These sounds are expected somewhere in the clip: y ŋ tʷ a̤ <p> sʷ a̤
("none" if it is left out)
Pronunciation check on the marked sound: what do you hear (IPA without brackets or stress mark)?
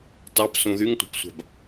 p